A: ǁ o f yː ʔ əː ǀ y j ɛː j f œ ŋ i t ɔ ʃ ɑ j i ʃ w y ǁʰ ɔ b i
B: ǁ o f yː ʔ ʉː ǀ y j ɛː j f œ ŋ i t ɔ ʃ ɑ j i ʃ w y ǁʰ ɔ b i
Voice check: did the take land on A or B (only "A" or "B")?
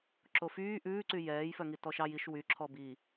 B